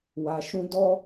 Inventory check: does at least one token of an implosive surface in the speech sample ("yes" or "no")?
no